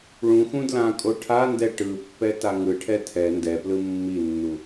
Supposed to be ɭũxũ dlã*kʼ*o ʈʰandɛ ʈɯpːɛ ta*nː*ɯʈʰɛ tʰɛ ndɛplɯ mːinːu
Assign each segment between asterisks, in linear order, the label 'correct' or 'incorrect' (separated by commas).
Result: correct, incorrect